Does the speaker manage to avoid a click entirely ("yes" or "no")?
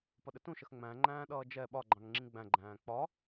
no